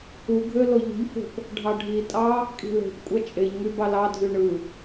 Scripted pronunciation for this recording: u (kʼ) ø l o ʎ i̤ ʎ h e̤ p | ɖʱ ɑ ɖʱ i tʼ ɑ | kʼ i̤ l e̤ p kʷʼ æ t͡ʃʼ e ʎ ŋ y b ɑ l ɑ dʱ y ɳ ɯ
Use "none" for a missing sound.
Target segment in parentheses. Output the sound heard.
ɡʱ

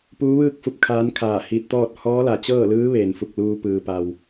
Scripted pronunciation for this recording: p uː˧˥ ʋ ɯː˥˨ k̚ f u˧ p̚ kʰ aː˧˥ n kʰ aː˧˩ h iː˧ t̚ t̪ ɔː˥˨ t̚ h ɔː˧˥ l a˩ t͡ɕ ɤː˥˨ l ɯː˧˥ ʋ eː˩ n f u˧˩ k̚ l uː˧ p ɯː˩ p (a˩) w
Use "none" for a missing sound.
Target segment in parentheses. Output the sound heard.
a˩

